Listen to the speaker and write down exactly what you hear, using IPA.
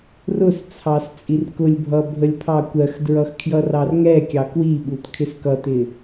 rʊst͡sʰɑs t͡sʼirkʊlʲbʱʌ bʱəlʲpʰɑkʷɜxdɹʌx kʰjʌrɑrŋɛkʲɑ kwiɓut kʰɪskʌtɪ

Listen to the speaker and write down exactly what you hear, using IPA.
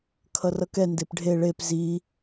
kʰʌrʌkɛ ndepɖʱe ɭep zi

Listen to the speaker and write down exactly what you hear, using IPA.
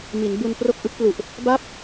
mi˩˦nbu˧npro˥˩k̚ ʔɯ˦˥k̚plu˨˩ʔ | ba˥˩p̚

